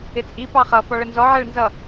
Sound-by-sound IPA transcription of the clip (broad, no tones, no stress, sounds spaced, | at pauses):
ɪ t͡sʼ i p ɑ χ ʌ f ɔ ɭ ə n z ɔ ʕ ɛ ɭ n z ʌ